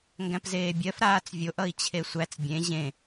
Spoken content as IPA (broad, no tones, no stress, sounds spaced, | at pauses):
ŋ ɡ æ̃ p z eː bʲ ɜ f ɾ aː t͡s vʲ o ʔ ʌ i̯ t͡ɕʰ e sʷ æ t͡s bʲ ẽ ʑ ẽ